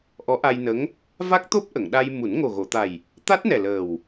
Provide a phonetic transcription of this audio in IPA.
ʔɔ˧˥ʔa˧jnə˧˥ŋ | va˦˥k̚t̪o˦˥p̚ʔə˨˩˨ŋ ɗa˧j mu˨˩˦n ŋo˨˩ɣo˨˩˨t̪a˨˩j | t̪a˦˥t̚nɛ˨˩ ləː˨˩w

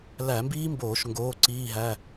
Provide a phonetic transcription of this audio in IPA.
læ˧˩˧mbiː˦˥mboː˧˩˧ʃ ŋɡoː˩˧˩ǀiː˩˧˩ɦæ˩˧˩

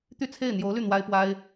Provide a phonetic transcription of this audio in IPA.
t̪y˥˧t͡sʰe˥˩ɪ̯ n̪jo˧˥ʊ̯ly˥˩ n̪wa˥ɪ̯pwa˥ɪ̯

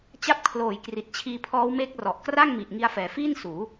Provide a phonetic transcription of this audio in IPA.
t͡ɕa˦˥p̚kʰloː˨˩jkri˨˩t̚t͡ɕʰiː˧ pʰɔː˦˥wmeː˦˥k̚rɔ˨˩ʔ kra˥˩ŋmi˨˩ʔŋi˧a̯fɛː˩˦ fiː˥˩nsuː˩˦

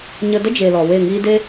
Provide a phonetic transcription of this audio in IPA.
ɲə˧də˦d͡ʒe˨ lɔ˨we˦˨ŋiː˦ de˦

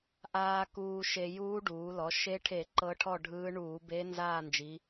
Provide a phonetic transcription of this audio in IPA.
ʔaː˧ kuː˧ʃe˧ juː˧˥ɖuː˩˧lɔ˩˧ ʃe˧˥ʈʰe˧˩˧ ǃɤ˧˥ʈʰɔ˥˨ɖʱɯː˧˥ɳuː˧˩˧ be˧˥ nzaː˥˨nd͡ʒi˩˧

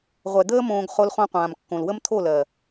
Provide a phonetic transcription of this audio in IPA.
ʁʷɛ˨d̪əː˦ mõː˧ɡ χo˧lχõ˧qʷãː˨m kːõ˨lwə˦mt̪ʰo˦˨lɜ˨

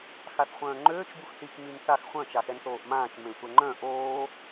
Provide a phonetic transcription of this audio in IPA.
xaθχʷœ̃ːŋ͡ǃøːt͡ʃ buxθik mynθax χʷœ̃ t͡ʃaxɛnθoːʔmãːt͡ʃ mẽsʷɛŋ͡ǃœ̃ ʔoː

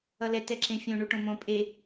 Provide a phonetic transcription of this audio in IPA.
ʌlɛ tɛǁẽfʲõ ɳuʈõmõ pʼe

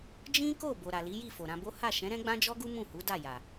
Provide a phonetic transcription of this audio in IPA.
d͡ʒĩ˦ko˦˨ bo˨ɾa˨li˨˦ji˦˨ fo˨ɾã˧bo˦ ha˦˨ʃɛ̃˨˦ ɾɛ̃˦ɡ͡bã˦d͡ʒɔ˦ɡu˦ mũ˦˨hu˨˦ da˦˨ja˨

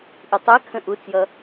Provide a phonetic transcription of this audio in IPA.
ʔitˤækʰə̃ ʔut͡sjʌ

